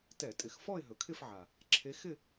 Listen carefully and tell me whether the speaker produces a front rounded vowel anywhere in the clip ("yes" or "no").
no